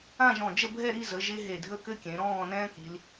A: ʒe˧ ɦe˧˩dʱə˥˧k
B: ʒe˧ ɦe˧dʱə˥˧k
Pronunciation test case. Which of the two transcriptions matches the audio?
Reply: A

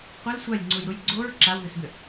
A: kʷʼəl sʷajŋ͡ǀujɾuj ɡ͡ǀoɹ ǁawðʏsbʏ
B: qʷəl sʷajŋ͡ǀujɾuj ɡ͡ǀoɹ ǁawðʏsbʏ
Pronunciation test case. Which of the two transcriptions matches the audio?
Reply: B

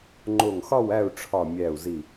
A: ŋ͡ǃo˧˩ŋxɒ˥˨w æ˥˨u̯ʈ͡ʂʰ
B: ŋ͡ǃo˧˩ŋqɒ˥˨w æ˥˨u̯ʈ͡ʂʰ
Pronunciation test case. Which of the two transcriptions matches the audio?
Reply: A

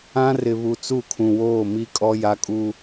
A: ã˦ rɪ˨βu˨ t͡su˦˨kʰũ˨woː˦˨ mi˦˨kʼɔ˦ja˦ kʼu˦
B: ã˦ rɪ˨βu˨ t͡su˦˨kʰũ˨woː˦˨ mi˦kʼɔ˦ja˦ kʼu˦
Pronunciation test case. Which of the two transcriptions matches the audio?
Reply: B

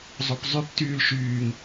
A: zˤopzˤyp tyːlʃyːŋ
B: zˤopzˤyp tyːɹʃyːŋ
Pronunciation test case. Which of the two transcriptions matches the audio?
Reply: A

